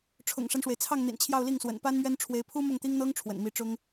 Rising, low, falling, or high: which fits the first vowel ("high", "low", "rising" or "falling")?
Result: low